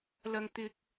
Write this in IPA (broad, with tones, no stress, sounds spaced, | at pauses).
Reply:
l ɐ˥ ŋ t̪ ɪ˥ k̚